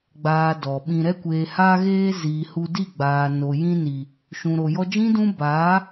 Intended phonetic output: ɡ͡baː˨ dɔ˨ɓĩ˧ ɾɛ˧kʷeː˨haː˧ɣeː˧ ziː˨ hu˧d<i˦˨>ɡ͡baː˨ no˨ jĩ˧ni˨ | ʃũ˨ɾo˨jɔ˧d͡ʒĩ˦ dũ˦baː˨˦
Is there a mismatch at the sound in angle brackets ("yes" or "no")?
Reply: no